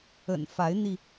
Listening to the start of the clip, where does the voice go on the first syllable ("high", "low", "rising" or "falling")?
low